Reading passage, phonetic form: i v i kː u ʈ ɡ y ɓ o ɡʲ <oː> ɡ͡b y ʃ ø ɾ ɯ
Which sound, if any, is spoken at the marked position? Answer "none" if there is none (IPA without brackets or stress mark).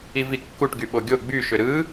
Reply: o